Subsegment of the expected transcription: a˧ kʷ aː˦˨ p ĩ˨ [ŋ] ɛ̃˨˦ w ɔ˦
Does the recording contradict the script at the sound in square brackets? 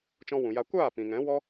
no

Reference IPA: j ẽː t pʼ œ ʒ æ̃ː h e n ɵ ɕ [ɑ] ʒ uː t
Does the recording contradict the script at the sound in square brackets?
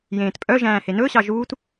no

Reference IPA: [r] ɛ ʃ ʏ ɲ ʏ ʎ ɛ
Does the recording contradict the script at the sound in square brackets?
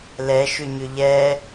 yes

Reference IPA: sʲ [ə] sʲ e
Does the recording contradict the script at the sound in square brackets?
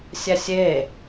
yes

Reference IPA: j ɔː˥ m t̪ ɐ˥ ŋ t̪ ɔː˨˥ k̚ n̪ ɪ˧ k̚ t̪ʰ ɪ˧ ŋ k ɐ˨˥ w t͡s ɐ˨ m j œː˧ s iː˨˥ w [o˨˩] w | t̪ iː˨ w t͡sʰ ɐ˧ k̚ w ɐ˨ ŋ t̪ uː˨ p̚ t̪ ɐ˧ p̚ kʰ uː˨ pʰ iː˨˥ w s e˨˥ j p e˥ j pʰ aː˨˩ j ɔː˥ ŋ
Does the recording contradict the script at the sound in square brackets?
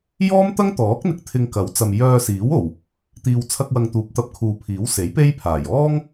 no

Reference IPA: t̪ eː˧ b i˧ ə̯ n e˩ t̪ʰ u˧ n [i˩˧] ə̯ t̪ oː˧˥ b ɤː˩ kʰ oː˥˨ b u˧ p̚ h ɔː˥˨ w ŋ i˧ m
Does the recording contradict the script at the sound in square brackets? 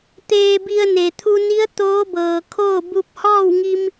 yes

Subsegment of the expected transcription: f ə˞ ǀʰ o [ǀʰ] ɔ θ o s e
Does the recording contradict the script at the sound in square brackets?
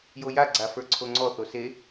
yes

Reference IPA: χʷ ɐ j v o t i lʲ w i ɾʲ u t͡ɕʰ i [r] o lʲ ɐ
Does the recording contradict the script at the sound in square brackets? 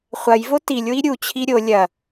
yes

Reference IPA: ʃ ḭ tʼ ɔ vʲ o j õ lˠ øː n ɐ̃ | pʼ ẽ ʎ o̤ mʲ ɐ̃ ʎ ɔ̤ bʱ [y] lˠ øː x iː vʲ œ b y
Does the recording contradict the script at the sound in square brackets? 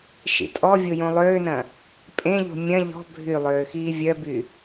no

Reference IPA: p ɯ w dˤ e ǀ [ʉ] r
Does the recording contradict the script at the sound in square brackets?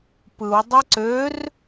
yes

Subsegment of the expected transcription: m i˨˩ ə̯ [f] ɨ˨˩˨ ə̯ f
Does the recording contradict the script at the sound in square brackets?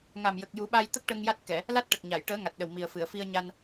no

